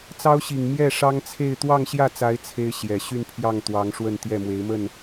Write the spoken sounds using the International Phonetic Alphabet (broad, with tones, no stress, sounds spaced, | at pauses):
t͡s ɑ˥ ʊ̯ ɕ i˨˩ ŋ m j ɛ˥˩ ʂ ɑ˥ ŋ t͡sʰ e˥˧ ɪ̯ t̪ w ɑ˥˧ ŋ ɕ j ä˥˩ t͡s a˧˥ ɪ̯ t͡sʰ e˥ ɪ̯ ɕ j ɛ˨˩ ɕ y˥˧ n pʰ j ɑ˥˩ ŋ t̪ w ɑ˧˥ ŋ ʂ w ə˥˧ n t̪ j ɛ˥˩ m w e˧˥ ɪ̯ m ə˥˩ n